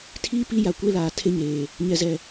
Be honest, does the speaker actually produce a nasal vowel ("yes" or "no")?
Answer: no